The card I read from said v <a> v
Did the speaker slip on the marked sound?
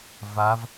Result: no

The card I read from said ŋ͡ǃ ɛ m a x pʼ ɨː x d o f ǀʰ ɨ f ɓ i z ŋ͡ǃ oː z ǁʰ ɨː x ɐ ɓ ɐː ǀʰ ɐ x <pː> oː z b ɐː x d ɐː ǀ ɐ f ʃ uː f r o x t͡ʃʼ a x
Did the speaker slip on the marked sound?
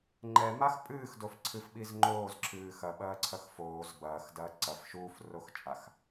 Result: yes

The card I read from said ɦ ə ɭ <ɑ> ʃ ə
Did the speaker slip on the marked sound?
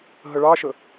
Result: no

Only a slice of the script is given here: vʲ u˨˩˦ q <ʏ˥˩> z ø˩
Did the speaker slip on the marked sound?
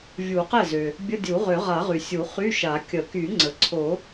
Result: yes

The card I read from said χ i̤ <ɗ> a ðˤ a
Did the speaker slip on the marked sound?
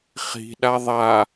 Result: no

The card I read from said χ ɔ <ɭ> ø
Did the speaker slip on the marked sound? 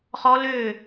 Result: yes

